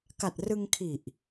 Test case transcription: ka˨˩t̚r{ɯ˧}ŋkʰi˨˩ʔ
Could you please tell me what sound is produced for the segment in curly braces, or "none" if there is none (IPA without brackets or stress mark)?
ɯ˧